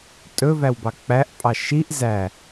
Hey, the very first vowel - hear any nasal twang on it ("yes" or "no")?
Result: no